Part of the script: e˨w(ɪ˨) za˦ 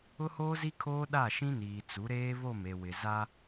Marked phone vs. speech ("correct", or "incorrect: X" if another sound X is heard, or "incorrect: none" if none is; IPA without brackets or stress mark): correct